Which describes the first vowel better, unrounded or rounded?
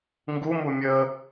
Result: rounded